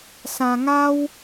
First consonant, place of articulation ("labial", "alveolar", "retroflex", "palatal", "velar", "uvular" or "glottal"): alveolar